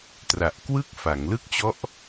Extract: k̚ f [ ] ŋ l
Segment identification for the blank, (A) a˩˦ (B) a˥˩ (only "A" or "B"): A